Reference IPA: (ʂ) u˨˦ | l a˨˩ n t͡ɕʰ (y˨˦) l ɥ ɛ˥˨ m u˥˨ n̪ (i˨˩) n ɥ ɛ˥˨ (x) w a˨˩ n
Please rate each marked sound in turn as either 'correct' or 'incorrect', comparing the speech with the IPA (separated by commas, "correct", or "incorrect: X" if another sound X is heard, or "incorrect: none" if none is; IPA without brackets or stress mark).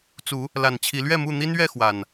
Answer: incorrect: t͡s, incorrect: i˨˦, incorrect: i˦, correct